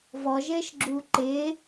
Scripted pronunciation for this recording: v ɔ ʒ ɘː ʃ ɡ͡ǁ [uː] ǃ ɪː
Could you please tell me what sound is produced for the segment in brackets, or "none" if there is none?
uː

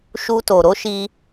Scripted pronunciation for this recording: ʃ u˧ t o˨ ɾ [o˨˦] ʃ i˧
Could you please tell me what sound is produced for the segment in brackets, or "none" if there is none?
o˨˦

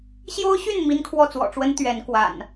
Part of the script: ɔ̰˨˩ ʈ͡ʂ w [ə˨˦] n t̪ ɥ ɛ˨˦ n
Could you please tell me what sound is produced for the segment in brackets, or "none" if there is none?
ə˦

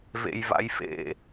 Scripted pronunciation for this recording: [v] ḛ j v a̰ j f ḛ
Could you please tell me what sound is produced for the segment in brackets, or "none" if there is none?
v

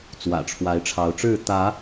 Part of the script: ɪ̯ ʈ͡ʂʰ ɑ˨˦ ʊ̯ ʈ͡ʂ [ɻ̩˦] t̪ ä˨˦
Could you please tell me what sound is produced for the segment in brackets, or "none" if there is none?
ɻ̩˥˨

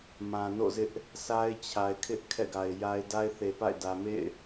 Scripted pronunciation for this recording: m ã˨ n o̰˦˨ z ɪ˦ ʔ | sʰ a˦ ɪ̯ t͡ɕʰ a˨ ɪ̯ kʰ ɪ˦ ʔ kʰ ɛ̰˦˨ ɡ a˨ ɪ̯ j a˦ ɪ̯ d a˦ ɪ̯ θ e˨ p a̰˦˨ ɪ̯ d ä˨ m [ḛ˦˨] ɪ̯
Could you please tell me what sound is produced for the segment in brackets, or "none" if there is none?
ḛ˦˨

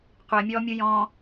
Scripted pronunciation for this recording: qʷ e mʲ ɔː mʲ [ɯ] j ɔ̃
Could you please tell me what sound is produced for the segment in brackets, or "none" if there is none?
u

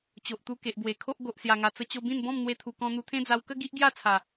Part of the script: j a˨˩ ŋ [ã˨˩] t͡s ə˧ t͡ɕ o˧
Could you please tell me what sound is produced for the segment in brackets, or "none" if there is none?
a˨˩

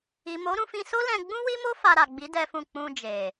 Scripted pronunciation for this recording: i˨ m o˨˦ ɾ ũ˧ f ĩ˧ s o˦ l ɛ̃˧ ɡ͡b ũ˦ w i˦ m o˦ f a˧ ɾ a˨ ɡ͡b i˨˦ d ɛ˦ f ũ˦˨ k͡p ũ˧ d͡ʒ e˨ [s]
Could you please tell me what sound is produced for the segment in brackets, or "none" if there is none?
none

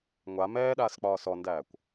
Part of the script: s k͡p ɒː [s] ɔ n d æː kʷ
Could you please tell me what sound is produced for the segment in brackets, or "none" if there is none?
s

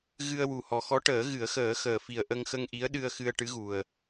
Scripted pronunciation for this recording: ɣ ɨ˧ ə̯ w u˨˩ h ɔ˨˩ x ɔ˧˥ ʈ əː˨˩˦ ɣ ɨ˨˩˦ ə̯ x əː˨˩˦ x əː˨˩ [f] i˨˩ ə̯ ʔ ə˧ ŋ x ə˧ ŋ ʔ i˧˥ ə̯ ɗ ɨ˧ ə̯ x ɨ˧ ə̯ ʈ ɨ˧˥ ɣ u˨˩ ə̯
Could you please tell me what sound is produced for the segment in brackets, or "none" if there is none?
f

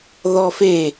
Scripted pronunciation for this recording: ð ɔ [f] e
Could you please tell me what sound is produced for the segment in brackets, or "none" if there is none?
f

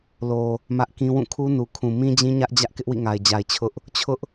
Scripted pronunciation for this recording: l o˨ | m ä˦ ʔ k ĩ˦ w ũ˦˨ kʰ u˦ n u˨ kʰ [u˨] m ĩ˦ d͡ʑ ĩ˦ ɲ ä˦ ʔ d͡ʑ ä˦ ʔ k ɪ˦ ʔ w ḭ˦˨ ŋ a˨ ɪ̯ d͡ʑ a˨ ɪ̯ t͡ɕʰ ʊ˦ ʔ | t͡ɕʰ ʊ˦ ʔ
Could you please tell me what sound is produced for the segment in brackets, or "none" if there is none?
ũ˨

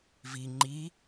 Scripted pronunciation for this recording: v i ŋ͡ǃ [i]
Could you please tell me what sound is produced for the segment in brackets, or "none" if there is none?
i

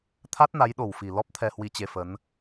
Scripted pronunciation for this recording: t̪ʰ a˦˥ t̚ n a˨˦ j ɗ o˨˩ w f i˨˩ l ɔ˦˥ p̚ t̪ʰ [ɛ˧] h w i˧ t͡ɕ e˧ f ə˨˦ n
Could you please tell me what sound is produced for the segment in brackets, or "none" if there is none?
ɛ˧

